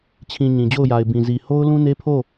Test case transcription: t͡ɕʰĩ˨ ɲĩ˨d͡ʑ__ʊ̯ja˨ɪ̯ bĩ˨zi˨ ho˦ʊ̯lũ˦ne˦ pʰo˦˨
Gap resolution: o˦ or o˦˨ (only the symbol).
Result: o˦˨